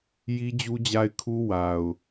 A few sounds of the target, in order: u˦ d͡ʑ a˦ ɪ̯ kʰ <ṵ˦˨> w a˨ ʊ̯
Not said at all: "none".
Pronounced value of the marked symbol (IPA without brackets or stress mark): u˦